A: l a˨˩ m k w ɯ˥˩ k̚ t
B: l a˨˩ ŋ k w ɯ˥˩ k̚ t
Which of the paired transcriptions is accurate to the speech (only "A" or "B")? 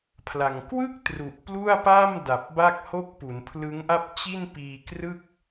B